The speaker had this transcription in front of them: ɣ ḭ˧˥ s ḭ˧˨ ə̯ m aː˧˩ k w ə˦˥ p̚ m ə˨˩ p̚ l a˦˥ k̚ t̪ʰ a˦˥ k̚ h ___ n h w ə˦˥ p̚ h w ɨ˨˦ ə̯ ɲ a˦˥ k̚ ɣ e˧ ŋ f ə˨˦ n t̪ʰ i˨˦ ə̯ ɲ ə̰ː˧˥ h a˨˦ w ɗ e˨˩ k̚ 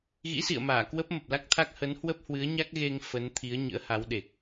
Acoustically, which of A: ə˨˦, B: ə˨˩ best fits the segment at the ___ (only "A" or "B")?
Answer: A